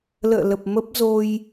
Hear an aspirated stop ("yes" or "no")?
no